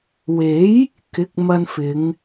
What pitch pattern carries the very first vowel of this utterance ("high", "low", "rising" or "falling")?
rising